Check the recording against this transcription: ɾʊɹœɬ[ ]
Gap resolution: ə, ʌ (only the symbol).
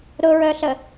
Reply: ə